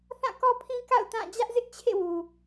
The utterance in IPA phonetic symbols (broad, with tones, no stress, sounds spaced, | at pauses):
θ ã˦˨ k ɔ˦ pʰ ĩ˦ k a̰˦˨ ʊ̯ t ã˦˨ d͡ʑ ä˦ ʔ z ɪ˦ ʔ t͡ɕʰ ḛ˦˨ w u˨